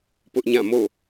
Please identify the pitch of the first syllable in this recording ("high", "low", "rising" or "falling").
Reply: high